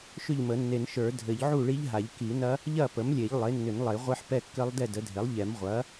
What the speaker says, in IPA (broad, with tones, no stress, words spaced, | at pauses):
ʃʏ˥˨ʎmə˨˩˦nːe˨˩˦nʃə˞˨˩˦ dʱɘ˨˩˦ʎʕu˥˨ɭi˦˥ʎ ɦa˨˩˦ʎki˨˩˦nɐ˦˥ | ʎɐ˥˨pə˩˥mlʲe˨˩˦ʎ lˠe˩˥nːʏ˨˩˦nlˠe˨˩˦ ʁʷɘ˦˥ħpɛ˥˨kːɘ˦˥lˠ dɛ˥˨də˩˥dʱe˩˥lˠʎɛ˨˩˦m ʁʷɐ˩˥